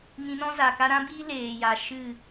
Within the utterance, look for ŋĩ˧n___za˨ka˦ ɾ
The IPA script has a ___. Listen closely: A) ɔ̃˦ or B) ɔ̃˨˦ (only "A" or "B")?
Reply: A